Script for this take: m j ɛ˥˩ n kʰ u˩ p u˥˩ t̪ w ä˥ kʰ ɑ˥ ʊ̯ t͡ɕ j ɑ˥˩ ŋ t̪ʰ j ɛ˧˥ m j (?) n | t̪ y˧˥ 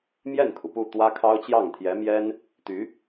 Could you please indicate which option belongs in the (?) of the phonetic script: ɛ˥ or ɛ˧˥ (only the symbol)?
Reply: ɛ˥